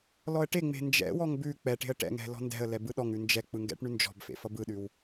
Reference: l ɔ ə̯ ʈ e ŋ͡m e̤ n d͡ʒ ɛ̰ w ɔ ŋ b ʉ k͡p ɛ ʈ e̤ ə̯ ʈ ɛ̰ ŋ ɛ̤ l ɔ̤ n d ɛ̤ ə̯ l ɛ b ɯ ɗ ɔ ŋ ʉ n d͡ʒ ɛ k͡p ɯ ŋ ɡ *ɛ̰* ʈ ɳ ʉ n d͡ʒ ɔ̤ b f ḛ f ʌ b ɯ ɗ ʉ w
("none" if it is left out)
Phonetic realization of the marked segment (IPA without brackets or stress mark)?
ɛ̰